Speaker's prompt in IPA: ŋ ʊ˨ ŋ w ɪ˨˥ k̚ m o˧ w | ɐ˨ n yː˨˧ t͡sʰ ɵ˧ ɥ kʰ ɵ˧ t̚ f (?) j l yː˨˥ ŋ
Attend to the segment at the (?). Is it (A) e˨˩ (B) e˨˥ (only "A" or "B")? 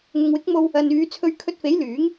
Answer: B